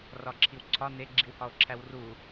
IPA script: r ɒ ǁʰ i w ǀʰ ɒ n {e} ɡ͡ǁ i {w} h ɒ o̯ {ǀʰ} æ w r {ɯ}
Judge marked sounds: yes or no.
yes, yes, no, no

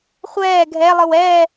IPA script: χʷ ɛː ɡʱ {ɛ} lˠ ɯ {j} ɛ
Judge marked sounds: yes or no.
yes, no

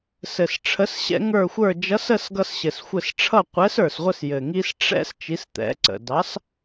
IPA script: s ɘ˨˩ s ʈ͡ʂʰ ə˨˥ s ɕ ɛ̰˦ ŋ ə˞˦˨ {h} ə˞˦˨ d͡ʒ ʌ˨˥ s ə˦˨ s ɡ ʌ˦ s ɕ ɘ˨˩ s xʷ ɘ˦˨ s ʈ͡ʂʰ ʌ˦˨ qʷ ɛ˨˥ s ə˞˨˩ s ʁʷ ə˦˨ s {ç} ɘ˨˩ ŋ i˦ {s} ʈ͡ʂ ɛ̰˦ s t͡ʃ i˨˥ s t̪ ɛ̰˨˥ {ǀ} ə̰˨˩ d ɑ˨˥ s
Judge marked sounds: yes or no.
no, no, yes, yes

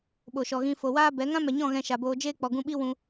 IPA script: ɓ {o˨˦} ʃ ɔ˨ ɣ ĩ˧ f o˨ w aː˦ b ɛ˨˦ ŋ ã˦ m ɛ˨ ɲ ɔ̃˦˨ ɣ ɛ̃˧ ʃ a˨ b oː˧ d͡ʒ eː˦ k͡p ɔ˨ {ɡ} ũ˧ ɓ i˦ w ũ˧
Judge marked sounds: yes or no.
no, yes

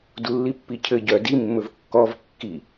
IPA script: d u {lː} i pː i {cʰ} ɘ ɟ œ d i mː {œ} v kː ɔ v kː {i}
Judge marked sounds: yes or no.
yes, yes, no, yes

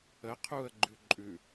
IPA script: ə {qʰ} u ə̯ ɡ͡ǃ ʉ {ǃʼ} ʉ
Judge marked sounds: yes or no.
yes, yes

